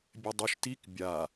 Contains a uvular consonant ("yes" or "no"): no